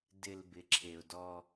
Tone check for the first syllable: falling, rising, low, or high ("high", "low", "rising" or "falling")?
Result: low